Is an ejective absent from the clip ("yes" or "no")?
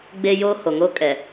no